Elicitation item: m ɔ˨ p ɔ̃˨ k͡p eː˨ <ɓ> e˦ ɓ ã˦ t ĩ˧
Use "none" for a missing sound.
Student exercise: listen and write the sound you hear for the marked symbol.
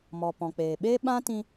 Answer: ɓ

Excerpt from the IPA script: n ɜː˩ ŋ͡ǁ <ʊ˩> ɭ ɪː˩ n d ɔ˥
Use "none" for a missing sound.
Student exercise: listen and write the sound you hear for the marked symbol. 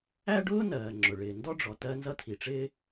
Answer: ʊ˩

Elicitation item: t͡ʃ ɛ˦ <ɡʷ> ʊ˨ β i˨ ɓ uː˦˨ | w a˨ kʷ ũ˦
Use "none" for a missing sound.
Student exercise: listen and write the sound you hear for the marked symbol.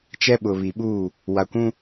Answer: ɓ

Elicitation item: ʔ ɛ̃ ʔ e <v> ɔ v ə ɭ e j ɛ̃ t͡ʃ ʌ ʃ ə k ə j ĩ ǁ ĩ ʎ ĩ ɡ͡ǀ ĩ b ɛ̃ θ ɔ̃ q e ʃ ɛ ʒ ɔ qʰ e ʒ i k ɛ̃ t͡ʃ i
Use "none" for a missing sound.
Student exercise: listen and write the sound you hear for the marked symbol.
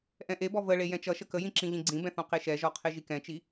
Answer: b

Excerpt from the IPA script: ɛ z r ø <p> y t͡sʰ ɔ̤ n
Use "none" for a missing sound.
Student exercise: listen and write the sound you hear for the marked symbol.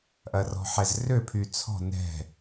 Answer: pʰ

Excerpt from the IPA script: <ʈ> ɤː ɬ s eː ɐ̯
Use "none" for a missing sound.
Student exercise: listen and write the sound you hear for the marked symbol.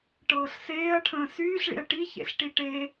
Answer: ʈ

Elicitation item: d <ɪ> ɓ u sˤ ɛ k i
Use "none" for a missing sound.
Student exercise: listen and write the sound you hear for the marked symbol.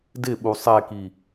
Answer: ɪ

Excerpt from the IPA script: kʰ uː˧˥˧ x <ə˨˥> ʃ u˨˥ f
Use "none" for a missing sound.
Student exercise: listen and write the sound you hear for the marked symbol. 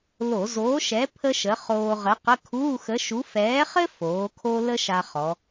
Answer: ə˨˥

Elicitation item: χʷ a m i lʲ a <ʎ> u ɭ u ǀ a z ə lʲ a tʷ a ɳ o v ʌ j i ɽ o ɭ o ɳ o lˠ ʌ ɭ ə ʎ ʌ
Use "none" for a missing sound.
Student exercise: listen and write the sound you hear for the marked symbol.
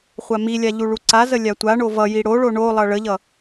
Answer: ʎ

